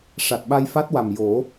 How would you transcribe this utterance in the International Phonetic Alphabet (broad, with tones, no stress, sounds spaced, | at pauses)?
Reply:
ʂ a˨˩ t̚ ɓ a˧ j f a˦˥ t̚ w a˨˩ m j o˨˩˦